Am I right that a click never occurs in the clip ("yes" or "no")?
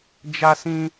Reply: yes